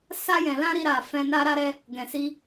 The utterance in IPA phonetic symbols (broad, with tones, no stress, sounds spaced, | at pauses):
s a˧ j ɛ̃˨ l ã˧ ɾ i˧ ɾ a˨ f ɛ̃˧ n a˧ ɾ a˧ ɾ ɛ˧ | ɡ ɛ̃˨ s i˧